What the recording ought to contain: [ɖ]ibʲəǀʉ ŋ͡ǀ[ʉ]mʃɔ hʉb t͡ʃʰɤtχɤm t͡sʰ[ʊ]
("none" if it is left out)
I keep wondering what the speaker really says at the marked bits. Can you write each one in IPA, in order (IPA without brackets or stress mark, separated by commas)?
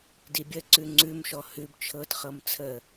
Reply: d, ʉ, ə